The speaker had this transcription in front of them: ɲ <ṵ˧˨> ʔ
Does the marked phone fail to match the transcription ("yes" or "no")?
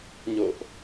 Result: yes